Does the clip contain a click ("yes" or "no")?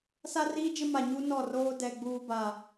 no